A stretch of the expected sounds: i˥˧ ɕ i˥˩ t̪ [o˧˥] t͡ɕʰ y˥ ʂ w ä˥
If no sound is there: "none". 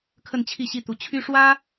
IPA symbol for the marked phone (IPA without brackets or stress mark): u˧˥